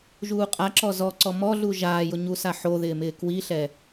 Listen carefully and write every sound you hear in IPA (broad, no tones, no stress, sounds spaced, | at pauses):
ʒ uː qʼ a ǁ ɔ z ɔ ǀ ɔ m ɔ ɮ u ʒ aː j ʊ ɲ u s a ħ o ð ɪː m ɪː k w i ɬ ɛ